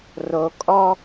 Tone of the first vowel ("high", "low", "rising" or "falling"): low